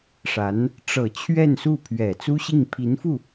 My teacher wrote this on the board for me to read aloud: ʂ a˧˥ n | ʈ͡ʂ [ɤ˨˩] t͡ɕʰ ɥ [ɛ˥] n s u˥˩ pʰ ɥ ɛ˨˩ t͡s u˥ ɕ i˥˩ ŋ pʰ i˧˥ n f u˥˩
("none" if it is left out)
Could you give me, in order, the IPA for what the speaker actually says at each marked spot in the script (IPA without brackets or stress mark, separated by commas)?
ɤ˨˩, ɛ˥˧